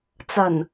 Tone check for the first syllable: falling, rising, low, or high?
low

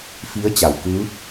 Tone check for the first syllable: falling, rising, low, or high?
rising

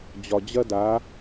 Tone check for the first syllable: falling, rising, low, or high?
low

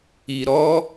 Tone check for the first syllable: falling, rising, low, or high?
low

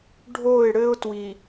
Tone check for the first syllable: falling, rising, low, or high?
falling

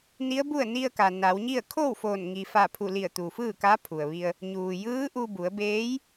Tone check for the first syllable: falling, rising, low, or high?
rising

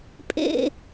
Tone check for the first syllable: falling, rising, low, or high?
low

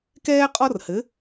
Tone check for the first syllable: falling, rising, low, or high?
high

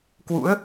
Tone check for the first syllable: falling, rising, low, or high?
rising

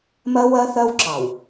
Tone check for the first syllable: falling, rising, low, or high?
high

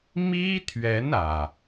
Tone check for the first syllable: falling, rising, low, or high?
high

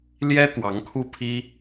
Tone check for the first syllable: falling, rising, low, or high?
high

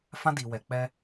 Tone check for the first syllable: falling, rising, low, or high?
high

